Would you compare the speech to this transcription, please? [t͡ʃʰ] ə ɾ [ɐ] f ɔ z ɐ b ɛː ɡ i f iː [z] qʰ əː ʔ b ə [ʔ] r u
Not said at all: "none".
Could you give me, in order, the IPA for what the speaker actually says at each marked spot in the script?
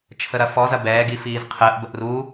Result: t͡ʃʰ, ɐ, z, ʔ

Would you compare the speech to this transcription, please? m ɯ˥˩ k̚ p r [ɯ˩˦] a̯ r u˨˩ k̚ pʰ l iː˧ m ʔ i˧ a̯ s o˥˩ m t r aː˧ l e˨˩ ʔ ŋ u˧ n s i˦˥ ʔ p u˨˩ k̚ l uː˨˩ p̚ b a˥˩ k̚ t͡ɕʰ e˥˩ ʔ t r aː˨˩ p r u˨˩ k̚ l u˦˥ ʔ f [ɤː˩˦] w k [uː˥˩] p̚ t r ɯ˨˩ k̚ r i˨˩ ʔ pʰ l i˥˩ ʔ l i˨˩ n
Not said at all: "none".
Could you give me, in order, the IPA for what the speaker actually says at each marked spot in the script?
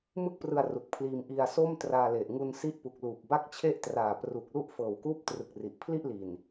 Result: ɯ˧, ɤː˨˩, uː˥˩

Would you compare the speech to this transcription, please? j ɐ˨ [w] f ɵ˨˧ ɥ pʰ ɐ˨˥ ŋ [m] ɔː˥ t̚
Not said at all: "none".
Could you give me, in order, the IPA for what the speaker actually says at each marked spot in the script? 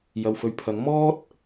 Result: w, m

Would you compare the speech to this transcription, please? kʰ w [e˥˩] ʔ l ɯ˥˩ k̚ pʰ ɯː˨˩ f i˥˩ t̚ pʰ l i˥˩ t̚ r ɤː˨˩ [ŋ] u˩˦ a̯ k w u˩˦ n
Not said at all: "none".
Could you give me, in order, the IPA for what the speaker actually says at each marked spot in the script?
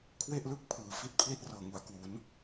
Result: e˥˩, ŋ

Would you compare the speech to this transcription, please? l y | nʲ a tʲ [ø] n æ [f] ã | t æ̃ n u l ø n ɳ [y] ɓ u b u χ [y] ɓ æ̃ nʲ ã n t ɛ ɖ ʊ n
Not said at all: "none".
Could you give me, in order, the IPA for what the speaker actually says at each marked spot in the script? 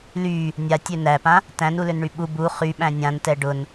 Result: ø, p, y, y

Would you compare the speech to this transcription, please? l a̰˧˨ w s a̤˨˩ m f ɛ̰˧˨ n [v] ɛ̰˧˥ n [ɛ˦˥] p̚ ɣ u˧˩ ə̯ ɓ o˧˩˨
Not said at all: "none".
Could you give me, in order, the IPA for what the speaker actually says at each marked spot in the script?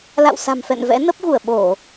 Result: v, ə˦˥

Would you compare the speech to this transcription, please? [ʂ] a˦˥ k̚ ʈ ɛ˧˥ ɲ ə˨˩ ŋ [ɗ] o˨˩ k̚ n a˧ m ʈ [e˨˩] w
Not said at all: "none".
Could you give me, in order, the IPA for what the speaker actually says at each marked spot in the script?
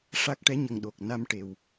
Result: ʂ, ɗ, e˨˩

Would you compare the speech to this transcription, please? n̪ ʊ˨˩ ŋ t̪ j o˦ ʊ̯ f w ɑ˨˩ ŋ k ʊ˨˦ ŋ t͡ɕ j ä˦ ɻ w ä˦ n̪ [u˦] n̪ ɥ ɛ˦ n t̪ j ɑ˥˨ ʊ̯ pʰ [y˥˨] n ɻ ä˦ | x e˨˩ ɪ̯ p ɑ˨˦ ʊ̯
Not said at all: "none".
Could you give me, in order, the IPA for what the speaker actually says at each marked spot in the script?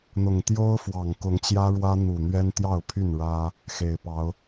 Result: u˨˩, y˥˨

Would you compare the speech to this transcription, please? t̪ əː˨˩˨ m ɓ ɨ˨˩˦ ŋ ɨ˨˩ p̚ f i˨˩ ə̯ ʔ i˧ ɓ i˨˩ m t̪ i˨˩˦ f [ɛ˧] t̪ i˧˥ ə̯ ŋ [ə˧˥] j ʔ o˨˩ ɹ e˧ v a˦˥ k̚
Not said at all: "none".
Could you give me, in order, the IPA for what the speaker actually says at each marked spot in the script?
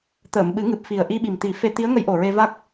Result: e˧, ə˧˥

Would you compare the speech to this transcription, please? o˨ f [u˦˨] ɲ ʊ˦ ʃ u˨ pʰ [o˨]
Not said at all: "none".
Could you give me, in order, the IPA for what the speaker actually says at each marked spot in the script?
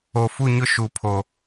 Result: u˦˨, o˨

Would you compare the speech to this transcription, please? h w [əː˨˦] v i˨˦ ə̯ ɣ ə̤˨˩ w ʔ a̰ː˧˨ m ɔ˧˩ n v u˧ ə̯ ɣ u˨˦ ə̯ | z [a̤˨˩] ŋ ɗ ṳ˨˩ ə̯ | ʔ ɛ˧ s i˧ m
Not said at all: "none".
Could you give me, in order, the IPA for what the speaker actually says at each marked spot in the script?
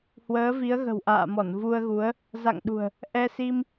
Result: əː˨˦, a̰˧˨

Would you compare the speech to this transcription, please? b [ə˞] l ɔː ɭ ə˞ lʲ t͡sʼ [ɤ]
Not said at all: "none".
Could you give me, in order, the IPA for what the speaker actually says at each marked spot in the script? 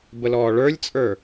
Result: ə, ə˞

